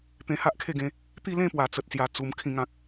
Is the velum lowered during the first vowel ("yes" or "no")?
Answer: yes